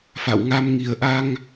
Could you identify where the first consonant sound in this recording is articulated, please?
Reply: labial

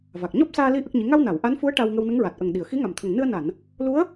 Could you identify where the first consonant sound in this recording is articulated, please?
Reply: labial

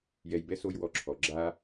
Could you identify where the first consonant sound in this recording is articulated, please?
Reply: palatal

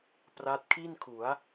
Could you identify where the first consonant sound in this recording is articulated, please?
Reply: labial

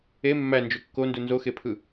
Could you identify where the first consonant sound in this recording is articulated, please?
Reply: labial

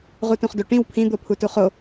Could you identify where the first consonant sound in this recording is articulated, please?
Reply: uvular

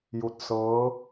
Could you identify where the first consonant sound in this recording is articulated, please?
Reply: palatal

